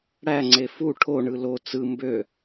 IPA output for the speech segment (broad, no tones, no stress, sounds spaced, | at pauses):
ɽ æ ŋ͡ǀ e f u ʈʰ o ɳ ɯ l o t͡s ɯ m b ø